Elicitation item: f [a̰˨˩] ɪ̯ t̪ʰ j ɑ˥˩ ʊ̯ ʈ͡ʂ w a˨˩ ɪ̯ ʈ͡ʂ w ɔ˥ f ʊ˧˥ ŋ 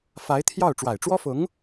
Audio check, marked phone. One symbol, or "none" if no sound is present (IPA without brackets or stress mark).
a˧˥